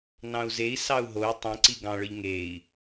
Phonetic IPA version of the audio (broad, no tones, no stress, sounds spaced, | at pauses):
n ɑ̃ u̯ z e i̯ s ɑ u̯ ɦ o u̯ tˤ ĩ ǀ i ɡ ɑ̃ ɭ ɯ ʎ ŋ e i̯